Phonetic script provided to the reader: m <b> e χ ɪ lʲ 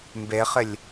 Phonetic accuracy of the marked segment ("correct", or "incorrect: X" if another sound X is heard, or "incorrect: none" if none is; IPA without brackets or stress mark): correct